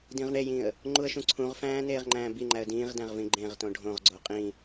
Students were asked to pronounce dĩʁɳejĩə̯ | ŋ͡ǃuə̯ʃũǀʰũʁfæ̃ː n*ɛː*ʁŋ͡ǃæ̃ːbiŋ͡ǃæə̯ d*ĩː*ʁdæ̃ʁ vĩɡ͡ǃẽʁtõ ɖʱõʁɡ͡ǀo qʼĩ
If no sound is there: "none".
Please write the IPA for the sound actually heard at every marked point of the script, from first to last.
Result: eː, ĩː

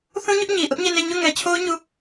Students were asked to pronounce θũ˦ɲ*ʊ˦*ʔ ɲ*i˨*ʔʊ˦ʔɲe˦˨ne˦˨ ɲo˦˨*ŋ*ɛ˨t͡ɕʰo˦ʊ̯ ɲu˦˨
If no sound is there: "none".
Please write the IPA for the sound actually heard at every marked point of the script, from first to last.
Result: ʊ˦, i˨, ŋ

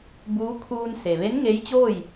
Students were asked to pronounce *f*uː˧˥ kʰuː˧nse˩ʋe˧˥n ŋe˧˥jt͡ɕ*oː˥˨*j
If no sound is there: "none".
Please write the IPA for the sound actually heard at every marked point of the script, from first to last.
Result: b, oː˥˨

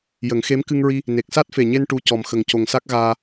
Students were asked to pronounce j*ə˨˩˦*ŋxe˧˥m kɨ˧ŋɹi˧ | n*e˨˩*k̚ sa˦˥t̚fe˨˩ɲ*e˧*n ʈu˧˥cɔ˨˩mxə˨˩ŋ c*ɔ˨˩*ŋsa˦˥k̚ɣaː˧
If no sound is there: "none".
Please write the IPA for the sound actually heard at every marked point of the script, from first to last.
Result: ə˨˩˦, e˨˩, e˧, o˨˩

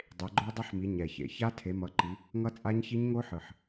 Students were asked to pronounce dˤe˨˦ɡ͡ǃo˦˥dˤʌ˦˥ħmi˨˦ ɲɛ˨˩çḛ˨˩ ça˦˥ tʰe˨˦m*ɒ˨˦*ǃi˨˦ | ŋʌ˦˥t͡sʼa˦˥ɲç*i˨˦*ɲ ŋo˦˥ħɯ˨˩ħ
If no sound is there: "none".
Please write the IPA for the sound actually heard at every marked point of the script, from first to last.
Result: ʌ˨˦, i˦˥

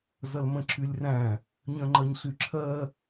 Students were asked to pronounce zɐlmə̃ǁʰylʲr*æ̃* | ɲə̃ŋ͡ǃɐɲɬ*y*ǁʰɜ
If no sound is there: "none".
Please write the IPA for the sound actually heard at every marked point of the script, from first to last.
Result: æ̃, y

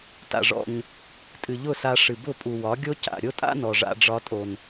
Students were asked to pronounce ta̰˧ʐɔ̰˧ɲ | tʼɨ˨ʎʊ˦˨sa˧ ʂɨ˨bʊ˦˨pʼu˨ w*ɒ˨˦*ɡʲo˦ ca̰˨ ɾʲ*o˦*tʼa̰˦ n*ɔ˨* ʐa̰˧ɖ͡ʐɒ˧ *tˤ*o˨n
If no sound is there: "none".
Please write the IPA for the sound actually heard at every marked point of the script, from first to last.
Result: ɒ˨˦, o˦, ɔ˨, tʼ

